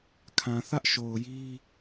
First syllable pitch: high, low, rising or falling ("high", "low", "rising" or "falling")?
low